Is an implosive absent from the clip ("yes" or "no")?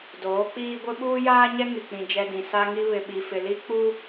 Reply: no